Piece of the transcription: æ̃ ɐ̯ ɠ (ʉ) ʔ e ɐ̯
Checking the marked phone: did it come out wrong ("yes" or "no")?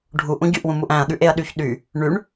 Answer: no